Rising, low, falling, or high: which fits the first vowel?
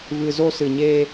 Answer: low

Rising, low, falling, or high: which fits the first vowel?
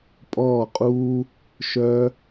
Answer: falling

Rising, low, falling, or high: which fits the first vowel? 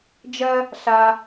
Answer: high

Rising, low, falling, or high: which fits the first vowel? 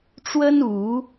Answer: high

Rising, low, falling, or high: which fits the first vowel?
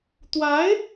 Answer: rising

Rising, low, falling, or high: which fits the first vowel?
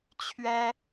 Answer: high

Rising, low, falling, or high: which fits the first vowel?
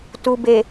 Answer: low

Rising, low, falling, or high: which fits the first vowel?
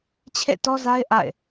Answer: falling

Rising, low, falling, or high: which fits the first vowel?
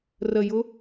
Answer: low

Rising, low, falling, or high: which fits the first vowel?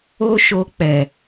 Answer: high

